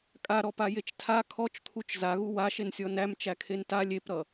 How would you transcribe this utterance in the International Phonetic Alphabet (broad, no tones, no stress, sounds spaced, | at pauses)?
kʼ a ɾ ɔ p a j e t͡ʃ tʰ a kʰ ɔ t͡ʃ t̪ʰ u t͡ʃ z a ɣ u w a ʃ e n sʲ ɔ n æ m t͡ʃ æ kʰ e n t a lʲ e p ɾ ʌ